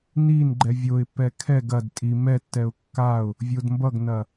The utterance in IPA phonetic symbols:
n i n ɡ͡ǃ ɛ vʲ o ɪ̯ pː ɛ kʰ ɛ ɡ ɐ d tʼ i m ɛ tː ɛ ʊ̯ kː a ʊ̯ | vʲ o d m b ʌ ɡ n ɐ

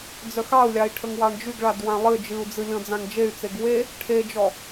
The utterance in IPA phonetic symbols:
d͡z œ x ɑ u̯ lʲ ɑ i̯ ʈʰ ə ŋ w ɑ ɳ d͡ʒ y ɡ ɭ a d w ã lˠ ɨ d͡ʒ ɨ u̯ d͡z ɨ lʲ ɔ̃ d͡z ã ŋ d͡ʒ e y̯ t͡s e ɡ w e | ʈʰ e d͡ʒ ɔ

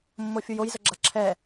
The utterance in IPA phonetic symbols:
mː o fʲ u j o j z ə ɡ͡ǁ a ǁʰ ɛː

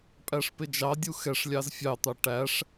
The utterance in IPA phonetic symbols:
pʼ æ ʂ p ɪ d͡ʒ ɑ dʲ u x ɛ ʂ lʲ ɑ z fʲ ɑ t̪ ɑ ʈ æ ʂ

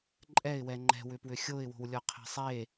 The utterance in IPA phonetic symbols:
ǃʼ ɛ ɪ̯ w ɛ ŋ͡ǃ ɛ̤ w ʏ p w ʏ xʲ o ɪ̯ w o̤ w lʲ ɔ qʰ ɛ̤ sˤ e

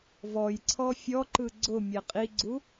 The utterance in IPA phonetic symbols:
v ɔ j ǀʰ ɔ fʲ ɔ ǃ ɯ ɡ͡ǀ ʊ mʲ ɛ qʼ i ɡ͡ǀ u

